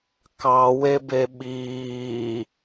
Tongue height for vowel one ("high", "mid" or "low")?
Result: low